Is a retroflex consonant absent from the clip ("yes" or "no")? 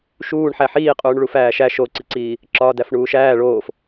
no